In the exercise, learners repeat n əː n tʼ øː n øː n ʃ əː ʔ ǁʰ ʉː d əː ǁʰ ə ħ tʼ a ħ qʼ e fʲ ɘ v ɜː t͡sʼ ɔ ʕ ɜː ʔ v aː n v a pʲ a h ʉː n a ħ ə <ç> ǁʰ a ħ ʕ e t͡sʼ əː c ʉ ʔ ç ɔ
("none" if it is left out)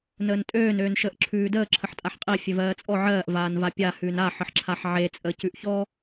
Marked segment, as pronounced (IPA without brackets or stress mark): ħ